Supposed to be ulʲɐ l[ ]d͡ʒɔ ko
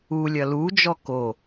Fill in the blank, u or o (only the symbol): u